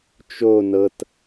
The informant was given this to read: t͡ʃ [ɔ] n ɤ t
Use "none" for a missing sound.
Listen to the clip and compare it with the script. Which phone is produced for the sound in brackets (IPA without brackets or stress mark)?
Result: o